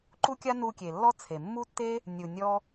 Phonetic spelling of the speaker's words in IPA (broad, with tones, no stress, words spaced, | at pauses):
ǃu˦kʲa˦ nu˧kʲe˨ lːɔ˦t͡sʰe˨ mːu˦tːe˦ | nʲu˧nʲɔ˦